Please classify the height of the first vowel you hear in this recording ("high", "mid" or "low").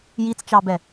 high